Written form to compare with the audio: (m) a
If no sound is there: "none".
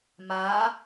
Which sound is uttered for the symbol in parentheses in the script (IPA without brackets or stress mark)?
m